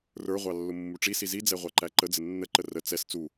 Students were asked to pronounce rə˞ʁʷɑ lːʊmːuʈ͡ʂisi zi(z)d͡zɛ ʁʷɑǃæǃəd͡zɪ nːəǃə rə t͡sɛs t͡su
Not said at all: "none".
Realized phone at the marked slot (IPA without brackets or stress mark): none